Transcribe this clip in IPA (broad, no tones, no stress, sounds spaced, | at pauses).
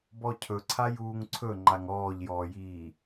b ɔ cʰ ɵ ǀʰ a j uː ŋ ǀʰ ɵ ŋ͡ǃ a ŋ ɔː ʎ j ɔː j iː